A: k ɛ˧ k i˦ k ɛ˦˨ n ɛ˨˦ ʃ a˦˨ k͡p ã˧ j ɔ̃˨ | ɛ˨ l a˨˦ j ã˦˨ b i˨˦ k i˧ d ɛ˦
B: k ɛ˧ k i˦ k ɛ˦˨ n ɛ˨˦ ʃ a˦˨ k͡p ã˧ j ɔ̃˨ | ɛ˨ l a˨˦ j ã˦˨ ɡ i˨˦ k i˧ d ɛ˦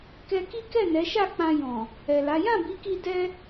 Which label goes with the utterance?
A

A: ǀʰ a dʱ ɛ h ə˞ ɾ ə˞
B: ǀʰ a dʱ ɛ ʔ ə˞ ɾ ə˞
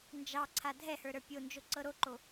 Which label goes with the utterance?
A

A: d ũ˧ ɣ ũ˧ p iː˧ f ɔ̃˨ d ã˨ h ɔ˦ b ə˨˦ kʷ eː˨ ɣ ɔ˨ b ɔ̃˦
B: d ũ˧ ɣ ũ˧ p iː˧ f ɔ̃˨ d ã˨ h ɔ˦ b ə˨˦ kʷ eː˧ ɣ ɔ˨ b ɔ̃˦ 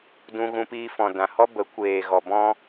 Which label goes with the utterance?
A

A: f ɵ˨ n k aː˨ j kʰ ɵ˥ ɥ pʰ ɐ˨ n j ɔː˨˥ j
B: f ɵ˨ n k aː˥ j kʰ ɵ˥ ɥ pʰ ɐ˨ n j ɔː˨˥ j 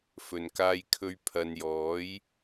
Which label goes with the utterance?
B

